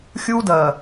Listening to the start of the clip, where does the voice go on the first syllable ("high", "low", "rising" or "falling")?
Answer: high